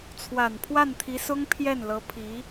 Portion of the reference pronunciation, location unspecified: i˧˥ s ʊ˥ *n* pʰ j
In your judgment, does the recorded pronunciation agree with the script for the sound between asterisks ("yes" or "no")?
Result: no